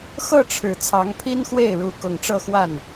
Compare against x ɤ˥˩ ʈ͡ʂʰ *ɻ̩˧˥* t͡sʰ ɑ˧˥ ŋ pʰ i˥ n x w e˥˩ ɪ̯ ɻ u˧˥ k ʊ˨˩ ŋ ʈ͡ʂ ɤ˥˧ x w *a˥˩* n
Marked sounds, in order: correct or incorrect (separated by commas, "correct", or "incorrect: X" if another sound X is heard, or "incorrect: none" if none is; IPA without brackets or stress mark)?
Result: incorrect: ɻ̩˨˩, correct